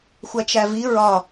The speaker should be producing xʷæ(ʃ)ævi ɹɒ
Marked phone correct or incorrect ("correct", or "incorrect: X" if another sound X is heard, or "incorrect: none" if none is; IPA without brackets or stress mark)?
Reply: incorrect: t͡ʃ